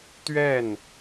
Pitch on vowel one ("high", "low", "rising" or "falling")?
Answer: falling